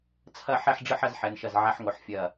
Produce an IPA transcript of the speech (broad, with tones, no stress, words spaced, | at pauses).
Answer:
t͡sʰɐ˥˧ħɛ˥˧ħɖ͡ʐɨ˥˧ħ ɐ˥˧z ħɛ˩˧nʃɐ˧˩z ʕa˧ħŋo˩˧ħ fʲɐ˧˩